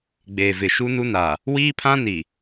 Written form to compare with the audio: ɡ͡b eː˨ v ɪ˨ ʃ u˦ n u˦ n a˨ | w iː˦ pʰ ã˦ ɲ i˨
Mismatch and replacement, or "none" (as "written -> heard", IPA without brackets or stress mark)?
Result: ɲ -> n